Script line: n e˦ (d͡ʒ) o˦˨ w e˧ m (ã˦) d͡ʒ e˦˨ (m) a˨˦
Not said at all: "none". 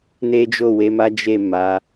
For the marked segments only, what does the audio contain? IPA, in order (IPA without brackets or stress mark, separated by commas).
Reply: d͡ʒ, a˦, m